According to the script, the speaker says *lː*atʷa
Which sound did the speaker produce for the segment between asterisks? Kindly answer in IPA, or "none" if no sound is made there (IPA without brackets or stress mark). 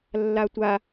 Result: lː